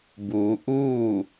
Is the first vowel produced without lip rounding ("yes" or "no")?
no